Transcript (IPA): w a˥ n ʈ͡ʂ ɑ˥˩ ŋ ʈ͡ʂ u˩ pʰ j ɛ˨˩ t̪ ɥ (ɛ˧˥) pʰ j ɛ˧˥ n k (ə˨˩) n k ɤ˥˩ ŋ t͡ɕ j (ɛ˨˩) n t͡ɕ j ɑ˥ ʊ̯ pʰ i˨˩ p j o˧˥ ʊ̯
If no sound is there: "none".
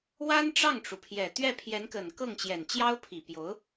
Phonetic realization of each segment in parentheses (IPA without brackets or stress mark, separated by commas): ɛ˥˩, ə˨˩, ɛ˨˩